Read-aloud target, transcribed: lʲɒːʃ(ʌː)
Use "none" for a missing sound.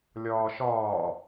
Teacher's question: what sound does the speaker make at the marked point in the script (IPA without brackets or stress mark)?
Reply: ɒː